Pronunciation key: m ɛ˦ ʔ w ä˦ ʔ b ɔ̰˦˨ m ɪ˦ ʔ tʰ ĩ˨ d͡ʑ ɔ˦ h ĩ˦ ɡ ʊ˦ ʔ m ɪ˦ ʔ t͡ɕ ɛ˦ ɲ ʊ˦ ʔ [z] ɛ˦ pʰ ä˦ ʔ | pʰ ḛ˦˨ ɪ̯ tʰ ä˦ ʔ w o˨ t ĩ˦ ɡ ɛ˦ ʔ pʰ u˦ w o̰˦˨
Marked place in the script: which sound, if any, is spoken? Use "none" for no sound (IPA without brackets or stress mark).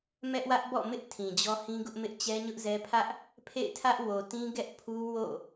z